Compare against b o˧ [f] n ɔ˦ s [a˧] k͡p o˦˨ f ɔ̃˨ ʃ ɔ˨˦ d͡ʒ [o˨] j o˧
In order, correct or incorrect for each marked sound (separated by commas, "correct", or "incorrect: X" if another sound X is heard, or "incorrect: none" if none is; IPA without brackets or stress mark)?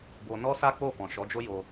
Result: incorrect: none, incorrect: a˦, incorrect: o˦